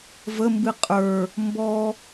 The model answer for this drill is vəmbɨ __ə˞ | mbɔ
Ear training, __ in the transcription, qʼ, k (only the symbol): qʼ